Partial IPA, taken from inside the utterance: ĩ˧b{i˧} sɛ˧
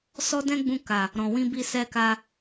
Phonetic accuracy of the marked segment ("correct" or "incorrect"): correct